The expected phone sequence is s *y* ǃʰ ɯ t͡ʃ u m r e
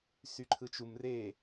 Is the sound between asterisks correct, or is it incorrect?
correct